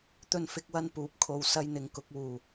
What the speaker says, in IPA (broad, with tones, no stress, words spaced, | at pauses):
t̪ɵ˥nfɪ˥k̚wɐ˥n puː˨˥p̚kʰo˨w sɐ˥jn̪ɪ˧ŋ kʊ˧k̚wuː˨˩